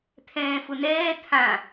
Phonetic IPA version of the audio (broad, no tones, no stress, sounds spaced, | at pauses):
t̪ʰ ɛ̃ː f ʊ n ɛː t̪ʰ ã